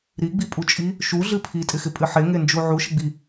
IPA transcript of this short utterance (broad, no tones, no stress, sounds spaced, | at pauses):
ɾ i ɡ͡b i pʼ u t͡ʃʼ i | ʃ u ɮ ɨ pʰ i tʼ ɪ x ɪ pʼ ɨ ħ e ŋ e n d͡ʒ u ʕ u ʃ ɪ ɡ͡b i